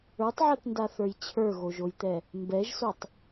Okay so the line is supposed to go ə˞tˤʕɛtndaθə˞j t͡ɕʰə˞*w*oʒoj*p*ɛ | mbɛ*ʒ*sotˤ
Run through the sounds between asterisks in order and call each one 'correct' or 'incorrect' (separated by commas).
incorrect, incorrect, correct